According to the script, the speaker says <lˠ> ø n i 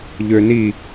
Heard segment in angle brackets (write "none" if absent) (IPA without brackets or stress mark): ʎ